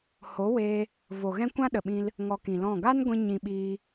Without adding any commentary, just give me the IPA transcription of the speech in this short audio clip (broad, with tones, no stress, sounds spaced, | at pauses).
h o˨˦ w eː˧ | v o˨ ɣ ɛ̃˦ kʷ ã˦ ɗ ə˨ ɓ ĩ˧ l | ŋ ɔ˧ k ĩ˨ l ɔ̃˦˨ ɡ a˦ n ɡʷ ĩ˧ ɲ ĩ˧ ɓ iː˧